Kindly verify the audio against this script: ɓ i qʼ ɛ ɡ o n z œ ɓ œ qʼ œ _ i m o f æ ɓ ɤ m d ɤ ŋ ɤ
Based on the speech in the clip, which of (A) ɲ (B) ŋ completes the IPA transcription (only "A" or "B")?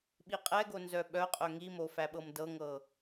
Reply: B